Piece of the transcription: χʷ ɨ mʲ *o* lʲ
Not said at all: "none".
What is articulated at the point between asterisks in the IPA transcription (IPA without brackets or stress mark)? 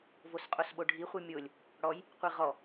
o